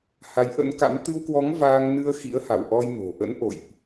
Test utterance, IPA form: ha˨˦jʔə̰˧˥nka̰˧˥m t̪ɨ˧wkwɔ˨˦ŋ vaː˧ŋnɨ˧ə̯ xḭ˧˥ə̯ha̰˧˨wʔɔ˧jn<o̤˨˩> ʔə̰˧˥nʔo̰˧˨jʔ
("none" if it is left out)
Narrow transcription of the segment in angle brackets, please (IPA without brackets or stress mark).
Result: o̤˨˩